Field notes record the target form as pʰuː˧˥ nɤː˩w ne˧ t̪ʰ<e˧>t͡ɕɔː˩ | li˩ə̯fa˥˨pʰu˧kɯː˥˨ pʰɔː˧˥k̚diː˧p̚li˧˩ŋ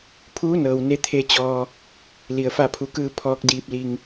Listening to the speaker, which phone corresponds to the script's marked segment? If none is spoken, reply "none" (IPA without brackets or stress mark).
e˧